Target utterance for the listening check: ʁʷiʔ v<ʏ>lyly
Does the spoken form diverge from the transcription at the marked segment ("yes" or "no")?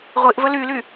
yes